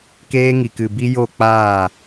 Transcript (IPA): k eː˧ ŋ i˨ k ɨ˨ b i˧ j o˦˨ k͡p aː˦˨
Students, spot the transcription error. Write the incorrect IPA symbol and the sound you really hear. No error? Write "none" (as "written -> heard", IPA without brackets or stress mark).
none